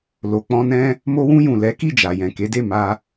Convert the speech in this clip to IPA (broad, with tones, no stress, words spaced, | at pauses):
lo˨k͡pɔ̃˧nɛ̃˦ | mo˧wũ˧jũ˨ lɛ˨˦ki˦˨d͡ʒa˨ jɛ̃˨ ke˨˦de˦˨ ma˧